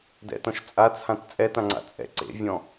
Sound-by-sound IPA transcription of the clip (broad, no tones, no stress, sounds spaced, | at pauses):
d ɛ̰ t ɔ̃ ʃ t͡sʼ a t͡sʰ ã t t͡sʼ ɛ t ã ŋ͡ǀ a̰ t͡sʼ ɛ̰ ǀ ḛ vʲ ɔ̃